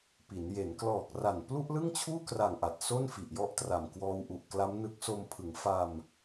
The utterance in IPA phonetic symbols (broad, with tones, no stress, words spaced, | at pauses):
pi˩˦n je˩˦nklɔː˨˩k̚ra˨˩n plu˥˩ʔlɯ˥˩ŋt͡ɕʰuː˥˩kra˨˩ŋ ʔa˨˩t̚ so˥˩nfi˨˩ʔjɔ˥˩ʔtra˨˩m kwɔː˧wʔu˨˩ʔ kla˦˥mnɯ˦˥k̚ so˧mpʰɯ˩˦ŋ fa˧m